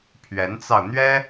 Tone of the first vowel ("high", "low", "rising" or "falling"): rising